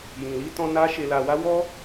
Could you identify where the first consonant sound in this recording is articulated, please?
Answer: palatal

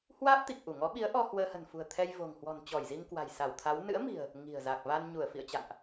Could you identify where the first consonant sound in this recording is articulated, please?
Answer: glottal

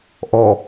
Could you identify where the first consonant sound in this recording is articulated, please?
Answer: glottal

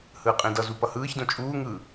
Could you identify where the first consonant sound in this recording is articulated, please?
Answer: glottal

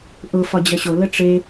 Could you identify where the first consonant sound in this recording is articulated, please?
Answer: glottal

